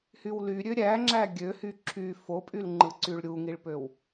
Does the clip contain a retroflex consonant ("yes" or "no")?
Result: yes